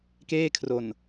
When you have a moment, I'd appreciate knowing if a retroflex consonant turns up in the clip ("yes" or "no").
no